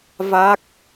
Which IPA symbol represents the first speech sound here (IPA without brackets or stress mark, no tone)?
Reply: v